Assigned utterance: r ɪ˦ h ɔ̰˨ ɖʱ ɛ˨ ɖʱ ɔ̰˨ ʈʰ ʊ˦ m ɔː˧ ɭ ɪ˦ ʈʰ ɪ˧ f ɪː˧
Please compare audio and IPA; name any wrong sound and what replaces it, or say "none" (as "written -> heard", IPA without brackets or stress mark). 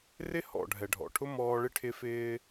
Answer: none